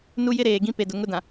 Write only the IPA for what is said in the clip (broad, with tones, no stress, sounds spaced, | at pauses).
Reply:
n u˦ j ɪ˦ ɾ eː˨ ɡ ĩ˦ p e˨ d ʊ˨ ŋ ʊ˦ d ã˨